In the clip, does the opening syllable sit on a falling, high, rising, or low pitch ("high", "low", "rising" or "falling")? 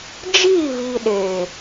falling